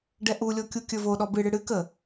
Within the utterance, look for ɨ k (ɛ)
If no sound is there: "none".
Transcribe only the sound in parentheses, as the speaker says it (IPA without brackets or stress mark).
ə